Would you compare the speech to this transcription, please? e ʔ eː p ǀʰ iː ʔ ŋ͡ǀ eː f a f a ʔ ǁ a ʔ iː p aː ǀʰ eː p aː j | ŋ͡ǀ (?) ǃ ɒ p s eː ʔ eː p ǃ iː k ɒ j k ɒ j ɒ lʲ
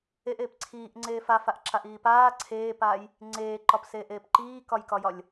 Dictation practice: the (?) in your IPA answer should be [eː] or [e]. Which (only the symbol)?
eː